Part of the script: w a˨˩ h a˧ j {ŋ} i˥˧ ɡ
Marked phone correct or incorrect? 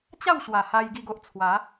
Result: incorrect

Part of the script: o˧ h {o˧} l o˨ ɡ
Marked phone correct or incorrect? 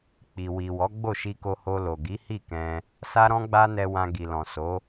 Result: correct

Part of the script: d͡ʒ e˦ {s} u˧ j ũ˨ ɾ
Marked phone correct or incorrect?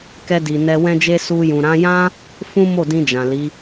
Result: correct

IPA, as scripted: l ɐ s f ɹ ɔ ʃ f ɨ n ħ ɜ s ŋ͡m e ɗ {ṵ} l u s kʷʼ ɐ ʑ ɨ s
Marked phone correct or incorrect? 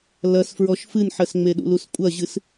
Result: correct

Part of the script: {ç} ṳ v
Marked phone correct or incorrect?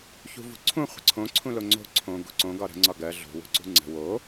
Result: correct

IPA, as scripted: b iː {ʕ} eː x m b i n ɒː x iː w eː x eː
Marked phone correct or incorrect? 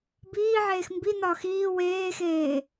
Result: correct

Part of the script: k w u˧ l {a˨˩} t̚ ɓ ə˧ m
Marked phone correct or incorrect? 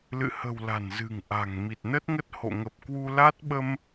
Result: incorrect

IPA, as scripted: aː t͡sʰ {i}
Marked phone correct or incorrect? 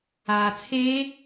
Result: incorrect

